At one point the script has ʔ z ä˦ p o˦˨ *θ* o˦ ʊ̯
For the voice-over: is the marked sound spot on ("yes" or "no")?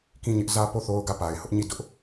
yes